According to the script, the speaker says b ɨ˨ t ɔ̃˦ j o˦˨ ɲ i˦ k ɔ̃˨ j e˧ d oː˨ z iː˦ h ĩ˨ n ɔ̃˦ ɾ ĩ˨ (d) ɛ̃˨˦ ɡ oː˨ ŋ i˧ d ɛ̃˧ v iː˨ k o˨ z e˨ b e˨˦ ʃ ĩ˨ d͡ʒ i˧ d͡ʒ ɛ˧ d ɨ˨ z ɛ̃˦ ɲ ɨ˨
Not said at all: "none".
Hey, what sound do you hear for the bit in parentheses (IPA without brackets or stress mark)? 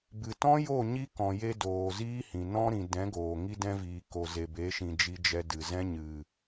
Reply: d